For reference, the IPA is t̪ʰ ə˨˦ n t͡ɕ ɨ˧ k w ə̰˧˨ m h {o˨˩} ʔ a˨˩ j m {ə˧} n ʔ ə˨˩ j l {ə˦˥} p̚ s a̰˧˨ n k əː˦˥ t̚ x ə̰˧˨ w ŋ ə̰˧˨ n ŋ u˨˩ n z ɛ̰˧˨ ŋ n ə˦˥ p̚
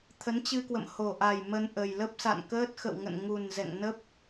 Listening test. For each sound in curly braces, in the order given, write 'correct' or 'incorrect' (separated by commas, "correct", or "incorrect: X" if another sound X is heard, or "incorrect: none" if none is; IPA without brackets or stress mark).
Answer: correct, correct, correct